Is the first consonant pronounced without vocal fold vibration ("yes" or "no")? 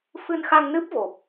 yes